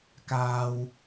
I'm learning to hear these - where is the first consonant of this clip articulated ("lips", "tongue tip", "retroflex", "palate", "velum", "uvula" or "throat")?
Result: velum